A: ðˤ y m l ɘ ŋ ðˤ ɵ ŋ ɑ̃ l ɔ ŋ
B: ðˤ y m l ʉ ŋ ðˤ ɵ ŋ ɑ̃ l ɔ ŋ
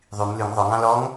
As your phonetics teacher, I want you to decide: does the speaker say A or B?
B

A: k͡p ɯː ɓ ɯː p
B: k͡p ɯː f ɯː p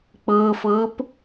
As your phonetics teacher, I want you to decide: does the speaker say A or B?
B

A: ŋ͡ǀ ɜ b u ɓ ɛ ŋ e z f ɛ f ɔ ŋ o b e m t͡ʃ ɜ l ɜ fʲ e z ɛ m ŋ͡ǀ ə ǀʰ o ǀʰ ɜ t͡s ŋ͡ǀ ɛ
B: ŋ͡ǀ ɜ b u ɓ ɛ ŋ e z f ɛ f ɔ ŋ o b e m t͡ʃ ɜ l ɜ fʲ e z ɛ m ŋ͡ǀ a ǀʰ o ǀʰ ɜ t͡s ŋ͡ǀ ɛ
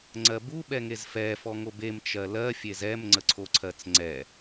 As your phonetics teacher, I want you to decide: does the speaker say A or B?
A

